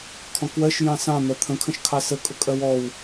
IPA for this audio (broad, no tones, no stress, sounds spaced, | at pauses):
kʰ ɔ̃ k w ɜ ʃ j ɑ̃ s ɑ̃ n̪ ɜ t̪ʰ ə̃ kʰ ə̃ ʃ kʰ ɑ s ə kʼ ʊ kʼ ɜ w ɔ w